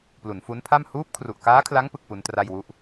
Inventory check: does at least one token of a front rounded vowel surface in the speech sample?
no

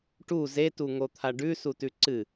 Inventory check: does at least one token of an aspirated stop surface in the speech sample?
yes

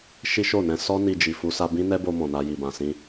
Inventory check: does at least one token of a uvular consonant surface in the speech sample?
no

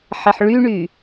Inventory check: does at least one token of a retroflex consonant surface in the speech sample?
yes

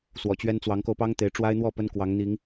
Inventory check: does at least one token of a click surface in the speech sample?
no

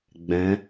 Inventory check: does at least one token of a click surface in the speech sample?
no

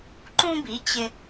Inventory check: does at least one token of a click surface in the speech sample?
yes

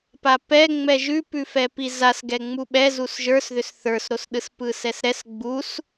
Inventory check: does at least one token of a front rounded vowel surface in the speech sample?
yes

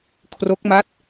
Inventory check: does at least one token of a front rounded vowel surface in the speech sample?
no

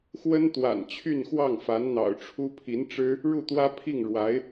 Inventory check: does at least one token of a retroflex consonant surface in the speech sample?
yes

